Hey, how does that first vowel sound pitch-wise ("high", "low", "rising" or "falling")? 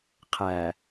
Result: low